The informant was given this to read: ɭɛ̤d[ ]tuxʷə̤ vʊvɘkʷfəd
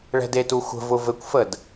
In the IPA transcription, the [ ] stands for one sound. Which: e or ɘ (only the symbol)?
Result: e